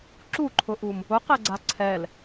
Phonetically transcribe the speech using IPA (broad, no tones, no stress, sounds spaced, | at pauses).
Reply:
ǁ u ǃʰ ʊ ʔ u m | ʊ q ɛ ɡ͡ǀ a ǀʰ ɛ l